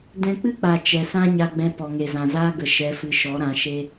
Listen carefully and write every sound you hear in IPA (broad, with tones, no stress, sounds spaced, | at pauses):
d ɛ̃˧ k͡p ɨ˦ k͡p a˨ t͡ʃ ɛ˨ s ã˦ ɲ a˧ ɡ͡b ɛ̃˧ p ɔ˨ ŋ e˨ z ã˨ z aː˦ ɡ ə˨ ʃ ɛ˨˦ f ɨ˨˦ ʃ ɔ˨˦ ɾ ã˨˦ ʃ e˦